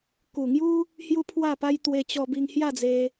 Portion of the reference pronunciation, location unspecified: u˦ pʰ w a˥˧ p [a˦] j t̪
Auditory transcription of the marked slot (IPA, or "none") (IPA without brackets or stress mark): a˦